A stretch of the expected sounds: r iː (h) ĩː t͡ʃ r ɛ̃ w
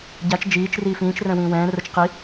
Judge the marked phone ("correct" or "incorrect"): incorrect